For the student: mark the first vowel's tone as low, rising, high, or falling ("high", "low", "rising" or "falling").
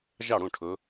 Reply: falling